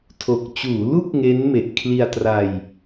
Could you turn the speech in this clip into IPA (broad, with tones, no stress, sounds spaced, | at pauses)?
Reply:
tʰ o˨˩ k̚ t͡ɕ uː˩˦ l u˦˥ k̚ ŋ e˦˥ n m e˨˩ ʔ kʰ l i˧ a̯ t r a˧ j